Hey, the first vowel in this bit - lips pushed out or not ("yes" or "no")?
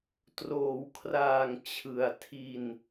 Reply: yes